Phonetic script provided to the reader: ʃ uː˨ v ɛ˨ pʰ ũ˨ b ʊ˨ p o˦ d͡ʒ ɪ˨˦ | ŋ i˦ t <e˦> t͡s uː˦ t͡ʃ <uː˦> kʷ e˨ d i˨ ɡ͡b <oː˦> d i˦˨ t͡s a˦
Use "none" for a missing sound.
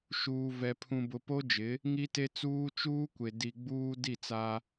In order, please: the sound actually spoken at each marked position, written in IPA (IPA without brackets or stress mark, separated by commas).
e˦, uː˦, uː˦